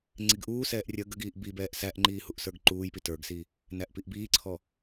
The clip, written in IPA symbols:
ŋ͡ǀ i ɡ ʔ uː s ɛː ʔ rʲ ə ɡ ə ɡ iː ʔ b i b ɛː ʔ s æ ʔ ŋ͡ǃ iː h u ʔ s ə˞ ɡ ǃ uː j p i t ə˞ ɡ s i | n æ ʔ p i ʔ b iː ǀʰ ɔ

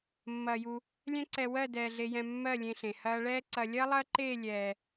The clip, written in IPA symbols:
mː ɐː˧ j u˧ | lʲ ɛ̃˦ ǀ ɛ˧ w ɜ˦˨ d ɛː˧ ɮ e˧ j ɛ̃˧ mː ɜ˦˨ lʲ ẽ˧ ɬ ẽ˨ h ɐː˧ ɭ ɛː˦ ǀ ɐ˧ lʲ ɐː˦ lˠ ɐː˦ ǃ eː˦˨ lʲ ɛː˨

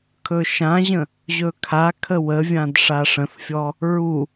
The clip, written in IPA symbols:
kʰ ɵ ʃ ã ʑ ə̃ | ʑ ɵ kʰ a kʰ ə w ə vʲ ã d ʂ a ʂ ə̃ θ fʲ ɔ | ɹ u

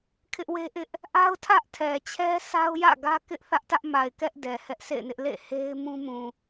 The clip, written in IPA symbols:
kʰ ɪ˦ ʔ w e˦ ʔ ɪ˦ ʔ | ʔ a˦ ʊ̯ tʰ ä˦ ʔ tʰ ɛ˨ t͡ɕʰ ɛ˦ s a˦ ʊ̯ j ä̰˦˨ ɡ ä˦ k ɪ˦ ʔ θ ä˦ ʔ t ä˦ ʔ m a˨ ɪ̯ k ɛ˦ ʔ d ɛ˨ h ɛ˦ ʔ s ḛ˦˨ ɪ̯ n ɪ˦ ʔ l ḛ˦˨ h e˦ ɪ̯ m ũ˦ m ũ˨

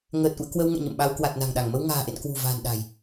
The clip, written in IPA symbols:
ŋ əː˨˩ t̚ ʔ ṵ˧˨ ə̯ k w ə˧ w ŋ ɛ̰˧˨ ɲ ə̰˧˨ m ɓ a˧ w k w a˨˩ t̚ n a̤˨˩ ŋ ɗ a˧˩ ŋ m ə˧ w ŋ a̤ː˨˩ ʔ ḛ˧˨ n k w ṳ˨˩ v a̤ː˨˩ n ɗ a̤˨˩ j

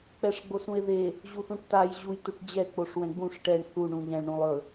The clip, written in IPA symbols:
k͡p ɛ ʂ ɡ͡b o s ũ e̯ ð e | ʑ u θ ũ ʈ t a j ʑ u j t u ʈ d͡ʑ ɛ k͡p o ʂ w ɛ̃ ɡ͡b ũ ʂ ʈ ɛ ɳ θ u ɳ ũ ʎ ɛ̃ ɭ ɳ ũ lˠ ɵ

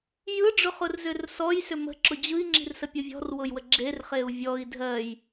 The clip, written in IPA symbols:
j ɯ ɖ͡ʐ ʊ χ ʊ r z ʏ r s ɔ j s ʏ m ə̤ ǁ ʊ d͡ʑ ɯ i̯ ŋ͡ǁ i̤ r s ə pʲ ʊ vʲ ɔ̤ r w ʊ j w ə ɡ͡ǁ e r χ e u̯ vʲ ɔ i̯ dʱ ɜ j

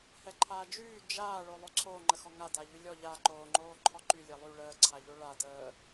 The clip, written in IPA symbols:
h ɛ ǃʰ aː d͡ʒ yː d͡ʒ aː ɭ o lˠ o ǀʰ oː ŋ͡ǃ ə x ɔ ŋ a d a ʎ y lʲ ɔ ʎ a ǃ oː ŋ͡ǃ oː ǃʰ ɔ ǃ y lʲ ɛ lˠ y ɭ əː ǀʰ a ʎ o ɭ a d əː

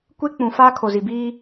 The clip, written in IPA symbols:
kʷ e˦ k͡p ũ˨ f aː˦ kʰ o˨ z i˨ b iː˦

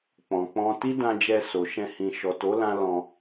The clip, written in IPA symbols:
k͡p ɔ̃˨ k͡p ɔ̃˧ t i˦ d ã˧ d͡ʒ ɛ˧ s o˨ ʃ ɛ̃˧ h ĩ˨ ʃ ɔ˨ t o˨˦ l ã˦ l ɔ̃˧

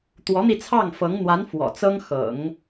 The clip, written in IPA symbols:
t̪ w ɔ˧˥ n̪ i˧ t͡sʰ ɑ˥˩ ŋ f ɤ˧˥ ŋ n̪ w a˧˥ n f w ɔ̰˨˩ t͡s ɤ˥ ŋ x ɤ̰˨˩˦ ŋ

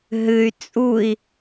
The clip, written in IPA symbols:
ɦ ɨ y̯ t͡sʼ u i̯

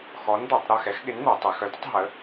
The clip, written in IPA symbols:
x ɔ˨˥ n d̪ œ˩˧ tˤ ɾ œ˦˨ x ɛ˨˥ x ɠ ɪ˨˥ n n̪ œ˩˧ tˤ i˩˧ x œ˨˥ d ə˨˥ tˤ ɦ ə˨˥

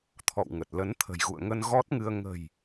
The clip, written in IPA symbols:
t̪ʰ ɔ̰˧˨ w ŋ ə˨˩ t̚ l ə˨˦ n t̪ʰ ə̤˨˩ j ɣ ṵ˧˨ ə̯ ŋ ə˧ n ɣ ɔ˦˥ t̚ ŋ ɨ˧ ə̯ ŋ ə̤˨˩ j

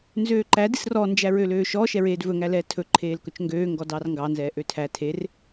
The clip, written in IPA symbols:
n z øː ǃ æ d i s r ɔ n d͡ʒ æ ɹ ø l øː ʃ ɔ ʃ ɛ ɹ eː d v ɵ ŋ æ l ɛː tʰ ɵ ǃʰ eː l k ɵ t͡ʃ ŋ ɡ øː ŋ ɡ ɔ d ɑ r ŋ ɡ ɑ n z ɛː ʔ ø tʰ æ tʰ e r

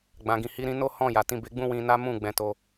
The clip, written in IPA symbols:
ɡ͡b ã˨ ɡ ĩ˨ h i˨˦ ɾ ĩ˧ n o˦ h ɔ̃˦˨ j a˨ t ĩ˨˦ b e˧ ɡ͡b ũ˦ w ĩ˧ n a˦ m ũ˦˨ ɡ͡b ɛ̃˨˦ t o˧

